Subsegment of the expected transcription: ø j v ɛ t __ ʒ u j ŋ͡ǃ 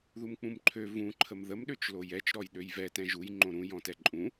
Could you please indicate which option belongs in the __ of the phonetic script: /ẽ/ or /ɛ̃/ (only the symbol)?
ɛ̃